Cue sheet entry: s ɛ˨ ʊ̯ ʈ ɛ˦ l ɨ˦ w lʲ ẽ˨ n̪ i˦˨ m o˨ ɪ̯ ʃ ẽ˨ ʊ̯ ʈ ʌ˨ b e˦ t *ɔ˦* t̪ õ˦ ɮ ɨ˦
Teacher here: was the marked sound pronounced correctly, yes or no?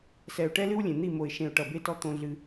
yes